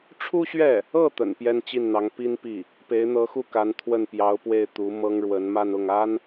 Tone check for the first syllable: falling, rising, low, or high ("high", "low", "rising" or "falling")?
high